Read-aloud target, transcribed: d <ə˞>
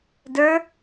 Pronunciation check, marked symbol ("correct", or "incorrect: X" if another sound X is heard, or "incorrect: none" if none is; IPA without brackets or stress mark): correct